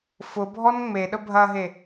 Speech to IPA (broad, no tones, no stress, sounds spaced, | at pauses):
f ʊ bʱ ɔ n ŋ͡m e ɗ ə bʱ ɐ ɦ e